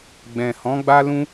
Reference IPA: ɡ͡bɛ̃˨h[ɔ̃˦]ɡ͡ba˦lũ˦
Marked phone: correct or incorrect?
incorrect